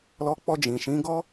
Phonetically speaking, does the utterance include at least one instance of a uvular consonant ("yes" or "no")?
no